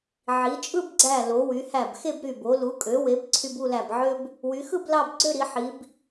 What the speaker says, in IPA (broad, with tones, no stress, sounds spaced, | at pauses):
ʕ i˩˧ t͡ʃʼ ɯ˥˧ b ɡ͡ǀ æ˧˩ l o˩˧ w y˩˧ h æ˧˩ b x e˥˧ b ɾ y˧˩ b o˩˧ l u˩˧ kʼ ø˩˧ w e˩˧ b ǀʰ y˧ b u˥˧ l æ˧˩ b ʕ ø˥ b | w y˩˧ x ɯ˥˧ b l ɑ˥˧ b ɡ͡ǀ ø˥˧ ɾ i˩˧ ħ i˩˧ b